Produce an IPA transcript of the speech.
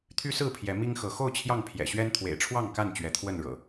t̪ʰ y˦ s ɹ̩˥˨ pʰ j ɛ˨˦ m i˦ ŋ x ɤ˨˦ x o˥˨ ʊ̯ t͡ɕʰ j ɑ˥˨ ŋ pʰ j ɛ̰˨˩ ɕ ɥ ɛ˦ n t̪ʰ w ḛ˨˩ ɪ̯ ʈ͡ʂʰ w ɑ˥˨ ŋ k a˥˨ n t͡ɕ ɥ ɛ˨˦ t̪ʰ w ə˥˨ n ɻ ɤ̰˨˩

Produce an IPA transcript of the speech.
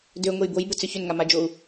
d ø ŋʷ e j b o j b ʊ t͡s ʏ ç ʏ n ŋ a m a d͡ʒ o u̯

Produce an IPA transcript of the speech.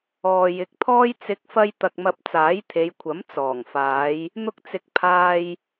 ɔː˨ j ɪ˨˥ k̚ t̪ʰ ɔː˥ j t͡s ɪ˨˥ k̚ f ɐ˧ j t̪ ɐ˧ k̚ m ɐ˧ p̚ t͡s aː˨˥ j t̪ʰ e˨˧ j kʷʰ ɐ˨˥ m t͡s ɔː˨˩ ŋ f aː˨˧ j | n̪ ʊ˧ k̚ t͡s ɪ˨ k̚ pʰ aː˧ j

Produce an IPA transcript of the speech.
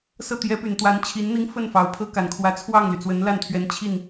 s ɤ˥˩ t̪ j ɛ˧˥ p y˨˩ n t̪ w a˧˥ n t͡ɕʰ i˧˥ n n̪ i˥ ŋ f ə˥˩ n f ɑ˨˩ ʊ̯ pʰ ɤ˥ k a˨˩ n kʰ w ä˧˥ t͡sʰ w ɑ˥˩ ŋ l y˩ t͡s w ə˧˥ n l a˥˩ n t̪ʰ ɥ ɛ˧˥ n t͡ɕʰ i˥˩ n

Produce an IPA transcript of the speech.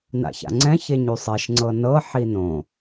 n a̰ ç a̰ ŋ͡ǀ ɛ̃ ç e ɲ y sˤ e ʃ ŋ͡ǀ ɤ n ɤ ħ i n õ

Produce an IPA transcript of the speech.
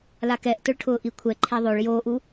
l a k ɛ ʔ t ʊ ɭ ʈʰ ʊː ʔ i kʷʰ ɛ ǃʰ e ðˤ o ɭ j oː ʔ u

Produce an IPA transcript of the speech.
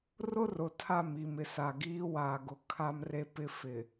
r ʊ˦ r ʊ˨ tʰ a˦˨ m i˨ m ɪ˨ s a˨ ɡ iː˦ w aː˨ ɡ ʊ˨ kʰ a˦ m r e˦ p ɪ˦ f ɪ˨

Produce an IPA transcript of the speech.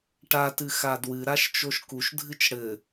ʈ a t ɨ x a d w ɨ ɾ a ʃ t͡ʃ o ʃ k u ʃ dʱ ɨ t͡ʃ ɽ ɘ

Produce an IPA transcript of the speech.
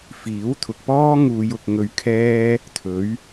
f iː˨˥ w t̪ʰ ʊ˨ k̚ p ɔː˥ ŋ uː˧ j ʊ˧ k̚ ŋ ɵ˧ ɥ kʰ ɛː˥ | t̪ʰ ɵ˨˥ ɥ

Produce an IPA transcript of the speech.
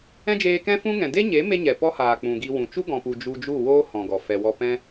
ɛ̃˦ d͡ʒ eː˧ k ɛ̃˦ f ũ˦ ŋ ɛ̃˨ d e˦ ɲ e˨˦ m e˦ ɲ ɛ˨ p ɔ˦ h aː˨ k͡p ũ˨ ɡ i˧ w ũ˨ t͡ʃ u˦ ɡ ɔ̃˨ p u˨ d͡ʒ u˧ d͡ʒ u˦˨ w oː˦ h ɔ̃˨ ɡ ɔ˨ f ɛ˨ w ɔ˧ p ɛ̃˧

